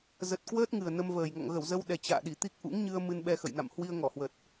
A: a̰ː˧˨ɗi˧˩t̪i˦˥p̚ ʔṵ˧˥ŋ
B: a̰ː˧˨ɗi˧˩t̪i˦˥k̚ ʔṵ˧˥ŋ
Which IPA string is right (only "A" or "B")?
B